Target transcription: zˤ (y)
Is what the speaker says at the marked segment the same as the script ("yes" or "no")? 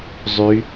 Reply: yes